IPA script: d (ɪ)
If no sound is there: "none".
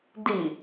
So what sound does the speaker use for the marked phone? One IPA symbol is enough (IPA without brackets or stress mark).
i